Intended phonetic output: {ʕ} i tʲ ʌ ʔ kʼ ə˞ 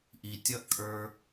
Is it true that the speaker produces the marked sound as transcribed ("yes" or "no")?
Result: no